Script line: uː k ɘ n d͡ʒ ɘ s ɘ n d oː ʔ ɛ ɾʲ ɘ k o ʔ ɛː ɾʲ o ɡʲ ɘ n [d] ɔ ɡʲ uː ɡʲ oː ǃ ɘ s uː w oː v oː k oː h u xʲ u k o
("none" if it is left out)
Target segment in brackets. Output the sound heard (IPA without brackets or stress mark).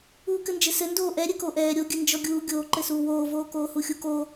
d͡ʒ